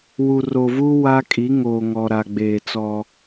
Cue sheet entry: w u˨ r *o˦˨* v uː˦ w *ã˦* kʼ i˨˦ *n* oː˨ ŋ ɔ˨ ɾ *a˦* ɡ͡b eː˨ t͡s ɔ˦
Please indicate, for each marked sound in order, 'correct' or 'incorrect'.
incorrect: o˨, incorrect: a˦, incorrect: ŋ, incorrect: a˨

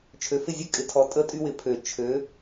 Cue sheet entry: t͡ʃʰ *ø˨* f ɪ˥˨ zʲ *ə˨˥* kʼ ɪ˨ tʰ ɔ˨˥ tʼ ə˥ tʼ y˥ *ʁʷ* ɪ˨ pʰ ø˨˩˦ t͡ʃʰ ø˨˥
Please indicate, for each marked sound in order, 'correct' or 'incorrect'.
correct, incorrect: ə˥, incorrect: w

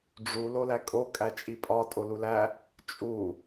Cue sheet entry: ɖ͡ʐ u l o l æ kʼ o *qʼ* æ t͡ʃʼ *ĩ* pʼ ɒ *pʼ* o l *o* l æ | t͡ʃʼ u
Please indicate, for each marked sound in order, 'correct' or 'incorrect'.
incorrect: kʼ, incorrect: i, incorrect: tʼ, incorrect: u

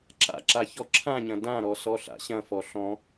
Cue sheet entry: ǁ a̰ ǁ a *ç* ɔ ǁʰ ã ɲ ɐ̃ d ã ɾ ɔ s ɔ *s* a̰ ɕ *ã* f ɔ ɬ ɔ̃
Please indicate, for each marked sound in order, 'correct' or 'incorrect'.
correct, incorrect: ɬ, incorrect: ɐ̃

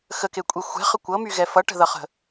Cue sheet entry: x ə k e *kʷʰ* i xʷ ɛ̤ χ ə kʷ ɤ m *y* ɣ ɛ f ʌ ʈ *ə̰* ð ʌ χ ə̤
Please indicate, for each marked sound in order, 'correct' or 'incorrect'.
incorrect: kʷʼ, correct, incorrect: ə̤

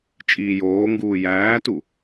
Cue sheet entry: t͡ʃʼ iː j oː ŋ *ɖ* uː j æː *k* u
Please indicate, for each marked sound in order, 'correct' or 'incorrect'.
incorrect: ɡ, incorrect: t

